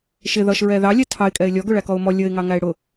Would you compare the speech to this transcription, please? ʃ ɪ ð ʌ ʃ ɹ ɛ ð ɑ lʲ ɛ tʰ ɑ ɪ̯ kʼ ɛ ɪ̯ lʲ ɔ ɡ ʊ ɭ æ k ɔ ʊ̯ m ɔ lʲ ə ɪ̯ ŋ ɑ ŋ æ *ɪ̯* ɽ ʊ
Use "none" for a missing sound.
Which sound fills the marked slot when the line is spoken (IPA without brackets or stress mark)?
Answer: ɪ̯